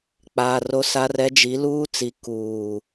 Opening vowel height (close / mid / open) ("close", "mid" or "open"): open